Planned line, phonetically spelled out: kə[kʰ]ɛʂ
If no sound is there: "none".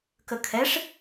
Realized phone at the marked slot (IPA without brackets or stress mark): kʰ